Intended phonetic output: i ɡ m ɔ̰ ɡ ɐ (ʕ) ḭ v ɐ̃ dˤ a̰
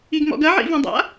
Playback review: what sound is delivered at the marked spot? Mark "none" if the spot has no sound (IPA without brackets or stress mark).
ʕ